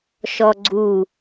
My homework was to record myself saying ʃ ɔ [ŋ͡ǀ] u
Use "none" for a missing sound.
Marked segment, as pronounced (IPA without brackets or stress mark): ɡ͡ǀ